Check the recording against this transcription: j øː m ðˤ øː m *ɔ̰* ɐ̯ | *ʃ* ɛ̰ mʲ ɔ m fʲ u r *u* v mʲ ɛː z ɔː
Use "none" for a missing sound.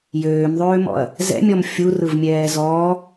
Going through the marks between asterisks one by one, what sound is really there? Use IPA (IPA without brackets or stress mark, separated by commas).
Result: ɔ̰, z, ɯ